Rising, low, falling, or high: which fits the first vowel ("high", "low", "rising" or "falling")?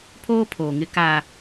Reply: high